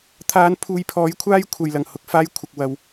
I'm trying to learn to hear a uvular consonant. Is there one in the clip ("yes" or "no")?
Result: no